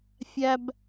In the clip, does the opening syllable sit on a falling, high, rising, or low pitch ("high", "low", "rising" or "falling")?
high